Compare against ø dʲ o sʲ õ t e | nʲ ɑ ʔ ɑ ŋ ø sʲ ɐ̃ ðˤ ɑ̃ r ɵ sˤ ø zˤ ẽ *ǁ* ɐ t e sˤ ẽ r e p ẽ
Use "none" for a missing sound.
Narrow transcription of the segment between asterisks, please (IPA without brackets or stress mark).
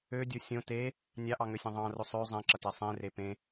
ǁ